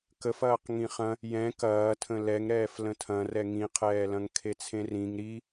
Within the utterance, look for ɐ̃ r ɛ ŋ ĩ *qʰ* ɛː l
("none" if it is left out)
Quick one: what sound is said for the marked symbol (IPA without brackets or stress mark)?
qʰ